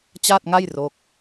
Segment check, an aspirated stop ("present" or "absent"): absent